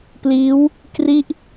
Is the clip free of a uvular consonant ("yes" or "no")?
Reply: yes